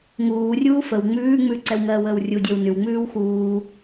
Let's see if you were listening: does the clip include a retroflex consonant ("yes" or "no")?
no